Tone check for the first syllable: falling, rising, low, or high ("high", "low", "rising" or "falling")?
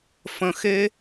low